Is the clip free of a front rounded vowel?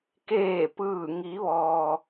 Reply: yes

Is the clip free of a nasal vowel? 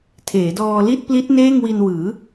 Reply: yes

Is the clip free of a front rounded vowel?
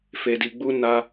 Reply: yes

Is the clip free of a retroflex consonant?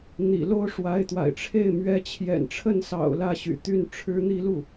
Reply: no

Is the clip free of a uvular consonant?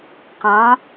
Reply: no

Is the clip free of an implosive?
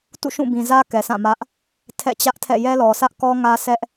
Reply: yes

